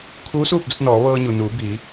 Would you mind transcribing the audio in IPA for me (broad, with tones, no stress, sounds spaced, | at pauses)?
kʰ uː˧˥ s uː˥˨ p̚ d u˧ t̚ n ɔː˩˧ ʋ ɤː˧ ɲ u˩ n uː˩˧ b iː˩˧